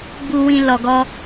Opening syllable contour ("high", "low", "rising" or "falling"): low